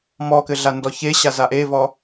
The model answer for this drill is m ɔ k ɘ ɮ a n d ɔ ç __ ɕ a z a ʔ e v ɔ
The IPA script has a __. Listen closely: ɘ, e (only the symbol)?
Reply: e